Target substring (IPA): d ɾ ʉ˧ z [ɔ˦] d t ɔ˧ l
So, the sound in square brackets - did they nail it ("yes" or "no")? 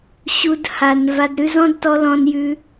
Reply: no